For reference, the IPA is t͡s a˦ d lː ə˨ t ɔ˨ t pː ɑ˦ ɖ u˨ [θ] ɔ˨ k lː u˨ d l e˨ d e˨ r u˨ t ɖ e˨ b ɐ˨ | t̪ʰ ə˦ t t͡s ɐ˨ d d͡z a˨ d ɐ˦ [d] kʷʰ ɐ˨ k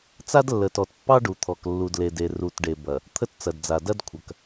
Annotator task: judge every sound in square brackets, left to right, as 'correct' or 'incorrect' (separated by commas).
incorrect, correct